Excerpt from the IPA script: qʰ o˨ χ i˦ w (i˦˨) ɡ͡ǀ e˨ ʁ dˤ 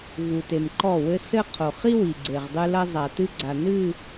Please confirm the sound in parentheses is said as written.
no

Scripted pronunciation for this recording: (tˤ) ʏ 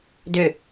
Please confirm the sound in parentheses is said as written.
no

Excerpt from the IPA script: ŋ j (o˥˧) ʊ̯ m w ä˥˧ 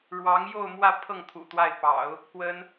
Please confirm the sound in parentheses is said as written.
yes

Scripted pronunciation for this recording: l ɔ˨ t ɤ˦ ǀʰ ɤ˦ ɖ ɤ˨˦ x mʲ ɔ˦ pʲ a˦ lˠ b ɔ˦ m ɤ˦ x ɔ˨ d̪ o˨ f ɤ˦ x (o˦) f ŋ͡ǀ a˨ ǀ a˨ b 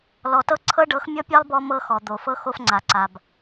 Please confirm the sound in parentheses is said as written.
yes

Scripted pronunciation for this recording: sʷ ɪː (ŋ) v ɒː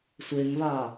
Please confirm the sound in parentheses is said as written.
yes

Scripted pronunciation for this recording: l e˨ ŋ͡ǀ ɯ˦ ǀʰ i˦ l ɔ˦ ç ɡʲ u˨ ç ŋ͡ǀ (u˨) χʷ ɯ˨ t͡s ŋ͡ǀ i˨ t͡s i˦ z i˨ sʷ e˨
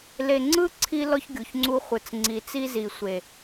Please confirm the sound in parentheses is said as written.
no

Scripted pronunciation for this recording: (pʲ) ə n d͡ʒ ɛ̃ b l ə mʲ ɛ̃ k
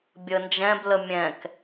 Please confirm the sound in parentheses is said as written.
no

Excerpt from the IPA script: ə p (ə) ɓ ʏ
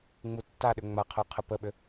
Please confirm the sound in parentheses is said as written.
yes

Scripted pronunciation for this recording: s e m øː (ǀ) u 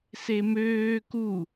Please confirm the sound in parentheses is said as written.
no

